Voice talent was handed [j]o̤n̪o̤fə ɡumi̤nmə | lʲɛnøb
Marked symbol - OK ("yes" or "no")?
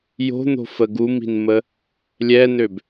yes